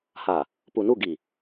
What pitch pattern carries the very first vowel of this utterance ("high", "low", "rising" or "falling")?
low